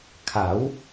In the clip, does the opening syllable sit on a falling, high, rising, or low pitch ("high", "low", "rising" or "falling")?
rising